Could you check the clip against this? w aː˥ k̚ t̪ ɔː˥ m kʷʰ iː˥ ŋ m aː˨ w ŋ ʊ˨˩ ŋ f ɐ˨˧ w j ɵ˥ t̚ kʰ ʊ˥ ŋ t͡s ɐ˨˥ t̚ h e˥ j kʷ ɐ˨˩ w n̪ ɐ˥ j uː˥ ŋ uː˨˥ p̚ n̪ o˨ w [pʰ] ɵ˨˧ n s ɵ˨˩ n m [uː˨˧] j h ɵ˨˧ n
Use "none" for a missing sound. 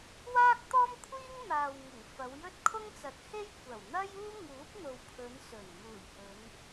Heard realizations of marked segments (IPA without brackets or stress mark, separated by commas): pʰ, uː˨˩